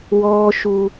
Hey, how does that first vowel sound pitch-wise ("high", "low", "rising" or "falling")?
high